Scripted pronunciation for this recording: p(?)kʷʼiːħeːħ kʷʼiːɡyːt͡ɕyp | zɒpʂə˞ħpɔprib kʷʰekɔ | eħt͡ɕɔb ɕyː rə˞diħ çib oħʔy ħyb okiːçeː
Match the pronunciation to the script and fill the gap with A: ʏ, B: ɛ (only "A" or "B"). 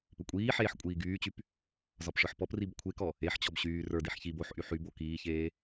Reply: A